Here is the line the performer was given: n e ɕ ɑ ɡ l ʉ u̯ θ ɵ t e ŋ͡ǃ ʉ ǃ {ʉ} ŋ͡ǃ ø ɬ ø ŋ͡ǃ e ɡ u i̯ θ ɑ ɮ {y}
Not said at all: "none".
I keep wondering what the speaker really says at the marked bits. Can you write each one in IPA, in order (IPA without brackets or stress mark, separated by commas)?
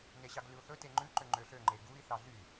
ø, y